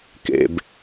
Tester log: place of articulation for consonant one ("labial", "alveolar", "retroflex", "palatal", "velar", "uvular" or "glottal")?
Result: velar